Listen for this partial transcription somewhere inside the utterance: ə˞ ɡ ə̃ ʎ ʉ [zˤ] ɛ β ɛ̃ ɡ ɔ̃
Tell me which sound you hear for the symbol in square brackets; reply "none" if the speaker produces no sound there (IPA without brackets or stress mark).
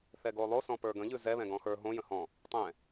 z